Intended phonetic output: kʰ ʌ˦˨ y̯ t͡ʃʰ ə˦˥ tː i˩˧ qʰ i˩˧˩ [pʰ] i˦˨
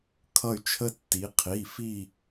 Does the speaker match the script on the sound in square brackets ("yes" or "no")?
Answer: no